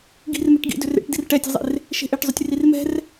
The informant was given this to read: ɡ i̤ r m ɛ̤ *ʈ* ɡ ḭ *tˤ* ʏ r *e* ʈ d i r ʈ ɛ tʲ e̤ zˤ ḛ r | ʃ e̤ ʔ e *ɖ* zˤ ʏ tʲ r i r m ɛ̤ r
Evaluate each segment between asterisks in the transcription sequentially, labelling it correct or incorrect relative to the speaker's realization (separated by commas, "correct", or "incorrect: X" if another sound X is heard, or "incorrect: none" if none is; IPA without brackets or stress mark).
correct, incorrect: d, incorrect: ḛ, incorrect: ʈ